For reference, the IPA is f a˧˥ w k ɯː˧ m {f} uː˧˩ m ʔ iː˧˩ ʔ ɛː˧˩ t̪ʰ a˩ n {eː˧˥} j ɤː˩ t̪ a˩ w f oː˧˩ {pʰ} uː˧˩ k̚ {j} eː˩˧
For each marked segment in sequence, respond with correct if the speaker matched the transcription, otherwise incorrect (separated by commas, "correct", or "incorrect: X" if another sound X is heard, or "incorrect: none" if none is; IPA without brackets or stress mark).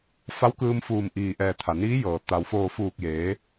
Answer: correct, incorrect: iː˧˥, incorrect: f, correct